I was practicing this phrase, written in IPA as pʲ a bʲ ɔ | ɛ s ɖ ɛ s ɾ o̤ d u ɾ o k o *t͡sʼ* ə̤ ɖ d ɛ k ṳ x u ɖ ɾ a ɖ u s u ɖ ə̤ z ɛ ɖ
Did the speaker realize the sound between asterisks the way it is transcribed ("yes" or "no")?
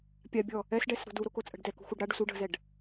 yes